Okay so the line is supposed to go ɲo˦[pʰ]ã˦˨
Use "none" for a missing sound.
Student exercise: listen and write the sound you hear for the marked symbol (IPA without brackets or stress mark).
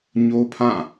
pʰ